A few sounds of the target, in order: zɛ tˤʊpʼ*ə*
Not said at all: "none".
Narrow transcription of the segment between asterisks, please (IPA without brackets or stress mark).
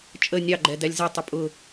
ʊ